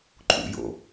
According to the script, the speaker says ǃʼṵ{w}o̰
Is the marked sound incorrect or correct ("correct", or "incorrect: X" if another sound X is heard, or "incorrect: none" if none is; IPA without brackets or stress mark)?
incorrect: j